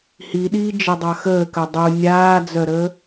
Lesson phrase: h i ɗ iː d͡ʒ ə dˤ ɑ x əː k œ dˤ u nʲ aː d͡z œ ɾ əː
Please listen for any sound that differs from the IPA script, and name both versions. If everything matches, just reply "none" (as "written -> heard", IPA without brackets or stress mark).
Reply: none